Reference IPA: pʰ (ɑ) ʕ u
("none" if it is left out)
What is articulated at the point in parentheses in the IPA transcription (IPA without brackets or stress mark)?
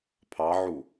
ɑ